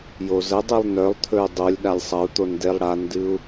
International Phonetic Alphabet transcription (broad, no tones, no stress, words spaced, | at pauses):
jozədˤɨlˠ nœlˠt̪ʰɵy̯ dˤolʲɗalʲ sˤɐu̯t̪on delˠɽandɨu̯